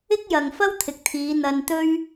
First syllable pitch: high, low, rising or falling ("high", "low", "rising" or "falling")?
high